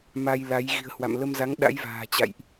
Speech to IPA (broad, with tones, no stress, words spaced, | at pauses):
ma˧jla˨˦j ɣi̤˨˩ə̯hwa̰˧˨mlə˧mza˨˦ŋ ɗa̰˧˥jva̤ː˨˩t͡ɕa̰˧˨jʔ